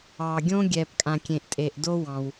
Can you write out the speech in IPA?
ɑ˩ ɡʲ õ˥ ɡʲ ɛ˩ p kʼ ã˩ kʲ ẽ˩ ʔ tʼ e˩ ʔ d o˥ w ɑ̃˩ w

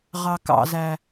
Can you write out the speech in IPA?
ʁ ɑ k ɑ̰ z æ

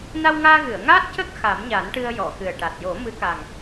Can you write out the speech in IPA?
n a˧ w ŋ aː˧ ɣ ɨ˨˩˨ ə̯ ŋ aː˦˥ t̚ c ə˦˥ k̚ x a˨˩˦ m ɲ a˨˩˦ n ʈ ɨ˧ ə̯ j ɔ˨˩˨ x ɨ˨˩ ə̯ ʈ a˨˩ t̚ j o˨˩˦ m ɨ˧˥ k a˨˩ ŋ

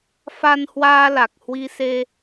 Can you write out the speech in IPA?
f a˧ n h w aː˧ l a˨˩ k̚ h w i˧ s e˧

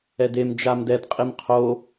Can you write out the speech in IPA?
ɛ d e m d͡ʒ a m d ɛ d qʼ i m qʰ o

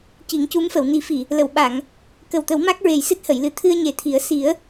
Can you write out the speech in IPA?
c i˨˩˦ ŋ c u˧˥ m f ə˨˩˨ w n i˨˩˦ f i˨˩˨ | l ə˨˩˨ w ɓ a˨˩˨ ŋ | k ə˨˩ w t̪ ə˨˩˦ w m a˦˥ k̚ ɹ e˨˩ j s ɨ˦˥ t̚ h ə˨˩˨ j l ɨ˨˩ t̪ʰ ɨ˧ ə̯ ɲ e˨˩˦ t̪ʰ i˨˩˦ ə̯ s i˨˩˦ ə̯

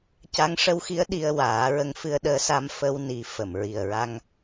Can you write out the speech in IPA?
c a˧˥ ŋ ʂ ə˧ w x i˧˥ ə̯ ɗ i˧ ə̯ w aː˨˩˦ ɹ ə˧ ŋ f ɨ˧ ə̯ ɗ əː˧˥ s a˧ m f ə˧ w n i˨˩˦ f ə˨˩˨ m ɹ i˨˩ ə̯ ɹ a˧ ŋ

